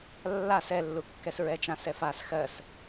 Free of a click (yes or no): yes